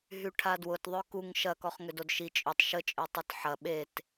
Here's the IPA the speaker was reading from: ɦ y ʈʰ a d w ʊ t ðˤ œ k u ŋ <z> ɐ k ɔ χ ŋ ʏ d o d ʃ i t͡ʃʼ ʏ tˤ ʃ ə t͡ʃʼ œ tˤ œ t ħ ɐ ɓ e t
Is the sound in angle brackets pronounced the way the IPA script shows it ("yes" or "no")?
no